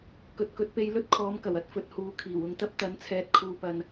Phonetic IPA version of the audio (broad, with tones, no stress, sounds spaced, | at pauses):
k ɵ˨ t̚ k ɵ˨˥ t̚ p e˧ j l ɵ˥ t̚ kʰ ɔː˨˧ m k ɐ˨˩ w ɐ˨ t̚ f ɵ˨ t̚ h uː˨˧ kʰ iː˨˩ w ʊ˧ ŋ t̪ ɐ˥ p̚ t̪ ɐ˨˥ n t͡sʰ ɛː˨ t̚ kʰ uː˨ p ɐ˨ n